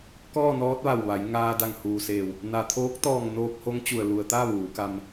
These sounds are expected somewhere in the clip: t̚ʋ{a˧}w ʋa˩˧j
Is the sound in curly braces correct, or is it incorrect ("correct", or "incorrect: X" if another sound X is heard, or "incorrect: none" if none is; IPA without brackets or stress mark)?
incorrect: a˧˩